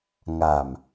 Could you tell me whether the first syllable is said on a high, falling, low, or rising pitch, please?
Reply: low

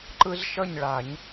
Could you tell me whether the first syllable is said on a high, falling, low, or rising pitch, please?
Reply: high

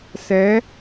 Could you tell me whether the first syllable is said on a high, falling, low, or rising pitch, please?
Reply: rising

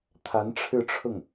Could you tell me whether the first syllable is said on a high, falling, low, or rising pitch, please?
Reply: rising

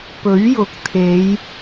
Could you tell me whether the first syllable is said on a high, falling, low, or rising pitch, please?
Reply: rising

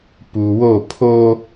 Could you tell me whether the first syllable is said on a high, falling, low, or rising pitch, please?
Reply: low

